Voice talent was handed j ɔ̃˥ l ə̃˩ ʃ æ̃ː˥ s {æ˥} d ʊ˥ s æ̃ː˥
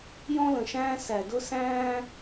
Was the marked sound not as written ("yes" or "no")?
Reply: yes